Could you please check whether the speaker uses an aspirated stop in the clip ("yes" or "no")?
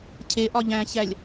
yes